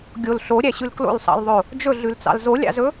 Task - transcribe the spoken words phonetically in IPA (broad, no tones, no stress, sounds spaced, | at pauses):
ɡʲ o l ɬ o ɾʲ æ ɕ ʉ l k l o̰ l sˤ ɑ̰ l ðˤ o | d͡ʒ ɵ ɮ ʉ l t͡s ɑ̰ l z o lʲ ɑ̰ z ɵ